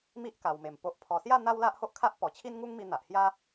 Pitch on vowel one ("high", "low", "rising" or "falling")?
high